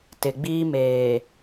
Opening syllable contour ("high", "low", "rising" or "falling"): low